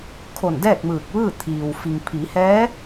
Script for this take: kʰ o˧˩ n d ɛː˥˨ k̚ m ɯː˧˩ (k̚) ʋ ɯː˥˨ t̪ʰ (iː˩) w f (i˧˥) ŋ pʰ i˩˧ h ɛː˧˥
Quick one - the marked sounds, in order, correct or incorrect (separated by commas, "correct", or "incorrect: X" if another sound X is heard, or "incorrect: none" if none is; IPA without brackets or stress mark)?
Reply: correct, correct, incorrect: i˩